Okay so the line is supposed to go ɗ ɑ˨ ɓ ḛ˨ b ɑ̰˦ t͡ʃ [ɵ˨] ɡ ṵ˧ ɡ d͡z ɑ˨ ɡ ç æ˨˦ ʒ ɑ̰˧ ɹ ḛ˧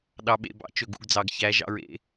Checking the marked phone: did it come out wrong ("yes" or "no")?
no